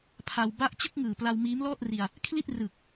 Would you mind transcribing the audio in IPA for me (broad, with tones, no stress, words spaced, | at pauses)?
pʰa˧w ba˦˥ʔt͡ɕɯ˥˩k̚ŋɯː˨˩ pla˧wmiː˦˥mlɔː˥˩t̚ri˧a̯ | kʰli˥˩t̚rɯ˨˩k̚